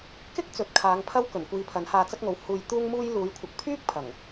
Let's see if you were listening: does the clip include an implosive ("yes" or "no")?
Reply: no